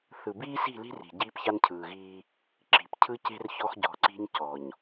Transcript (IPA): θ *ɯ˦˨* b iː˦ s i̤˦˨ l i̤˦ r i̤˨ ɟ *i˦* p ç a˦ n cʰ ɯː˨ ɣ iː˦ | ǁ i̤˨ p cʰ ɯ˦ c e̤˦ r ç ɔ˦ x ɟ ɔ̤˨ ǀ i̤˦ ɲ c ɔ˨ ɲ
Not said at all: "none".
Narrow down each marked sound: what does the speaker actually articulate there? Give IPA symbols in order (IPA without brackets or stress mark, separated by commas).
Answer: ɯ˨, iː˦